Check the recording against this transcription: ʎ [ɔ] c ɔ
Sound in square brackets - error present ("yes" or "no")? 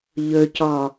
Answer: yes